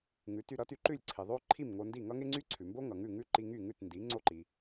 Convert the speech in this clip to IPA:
ŋʉ˩˥ty˧ɾʌ˩˥ty˧ ǃʉ˥˩lʲǀʰi˩ðˤo˥ǃʰi˥˩m ŋo˧ndi˥˩ ŋʌ˥ŋe˥ŋ͡ǀy˥ ǀʰʉ˩mbo˥ ŋʌ˩ ŋʉ˥˩ŋʉ˥ǃi˧ ŋy˥˩ŋʉ˥˩tndi˩˥ ŋ͡ǀo˥˩ǃi˩

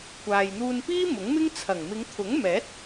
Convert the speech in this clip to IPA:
kʷʰaː˨jn̪uː˧npiː˥ mʊ˨˥ŋmɪ˥ŋt͡sʰɐ˨˩ŋ mɪ˨˧ŋ t̪ʰʊ˨˥ŋmɛː˨˥t̚

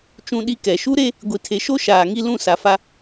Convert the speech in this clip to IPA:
t͡ʃũ˦ɗi˦kɛ˨ ʃu˦ɾe˦ | ɡʷi˨tʰe˨ʃo˦ ʃaː˨ŋi˦lũ˦˨ sa˨fa˦

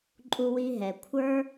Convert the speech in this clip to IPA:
ǃʼu˧wi˧ɦɛ˨kʷʰə˞˦

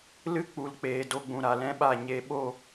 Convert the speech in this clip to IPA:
lɨ˦k͡pu˨l k͡peː˨do˧ɡ͡bũ˨ ɾa˨lɛ̃˦ɓa˦˨ ɲe˨ɓo˦˨

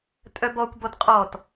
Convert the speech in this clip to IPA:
tʼœbɔkʷbɔt qʼɔt

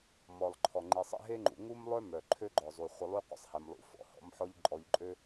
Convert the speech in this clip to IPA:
mɔ˩lˠǃʰɔ˩ ŋ͡ǃi˩sˤɛ̰˧ɦe˥ŋ͡ǃṵ˩ ŋu˥mlˠœ˥ mœ˩ ǃʰø˥ɡ͡ǃɔ˩zˤu˩ χʷə˧lˠy˥ qʷə̰˧sˤhɛ˩mlˠṵ˩ fɔ̰˧hɔ̰˥m ħɔ˥ʎǃʼɔ˧ʎǃʼø˥

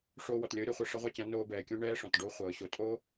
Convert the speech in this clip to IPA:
ʂoː˧wɔ˨tlʲɤː˨˦ ɾʲɒ˨χʷʌ˦˨ ʂʌ˦ʁʷa˦t͡ɕã˨˦ noː˧ bɛː˨kʲõ˦ ɳɛː˦ʂɔ̃˨t ɖo˦χʷɤː˨ɕo˧ tʼo˦

